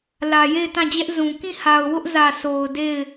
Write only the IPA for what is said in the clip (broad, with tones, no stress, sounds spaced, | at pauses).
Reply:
l ä˨ j e˦˨ ɪ̯ t ã˦˨ d͡ʑ ɛ˦ ʔ z ũ˨ k ĩ˦˨ h a˨ ʊ̯ w ʊ˦ ʔ z ä˨ s o˨ ʊ̯ d e˦˨ ɪ̯